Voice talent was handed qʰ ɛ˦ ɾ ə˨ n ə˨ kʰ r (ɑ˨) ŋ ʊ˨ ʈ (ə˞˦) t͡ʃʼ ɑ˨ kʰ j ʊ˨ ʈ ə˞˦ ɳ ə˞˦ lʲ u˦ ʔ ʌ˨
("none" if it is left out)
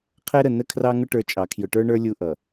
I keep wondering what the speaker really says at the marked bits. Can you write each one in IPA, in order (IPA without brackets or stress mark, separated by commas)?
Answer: ɑ˨, ə˞˦